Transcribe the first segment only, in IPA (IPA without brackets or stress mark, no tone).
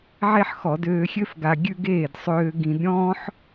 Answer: ʕ